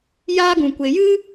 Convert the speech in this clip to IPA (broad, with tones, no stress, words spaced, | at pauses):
jaː˦ɡũ˨kʷe˨ jɨ˦